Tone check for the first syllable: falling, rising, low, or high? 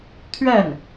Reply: falling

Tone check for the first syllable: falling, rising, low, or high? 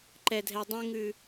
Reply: low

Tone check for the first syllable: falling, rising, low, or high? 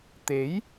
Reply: rising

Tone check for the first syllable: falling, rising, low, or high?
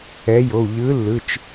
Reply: rising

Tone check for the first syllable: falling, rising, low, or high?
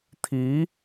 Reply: rising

